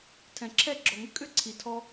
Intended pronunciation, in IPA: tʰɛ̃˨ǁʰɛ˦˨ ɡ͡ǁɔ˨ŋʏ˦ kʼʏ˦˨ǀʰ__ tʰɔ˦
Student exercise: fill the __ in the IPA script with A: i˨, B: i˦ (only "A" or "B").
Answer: A